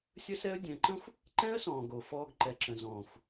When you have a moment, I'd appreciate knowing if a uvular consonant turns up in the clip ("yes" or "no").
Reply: no